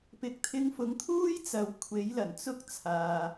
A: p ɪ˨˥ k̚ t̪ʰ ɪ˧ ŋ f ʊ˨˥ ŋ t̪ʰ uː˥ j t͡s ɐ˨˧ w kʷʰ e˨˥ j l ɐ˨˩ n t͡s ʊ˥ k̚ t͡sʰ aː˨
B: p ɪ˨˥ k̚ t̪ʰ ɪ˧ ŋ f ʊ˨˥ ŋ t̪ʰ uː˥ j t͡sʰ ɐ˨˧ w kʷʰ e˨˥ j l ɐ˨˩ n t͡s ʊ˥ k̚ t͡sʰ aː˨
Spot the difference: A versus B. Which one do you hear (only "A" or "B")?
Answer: A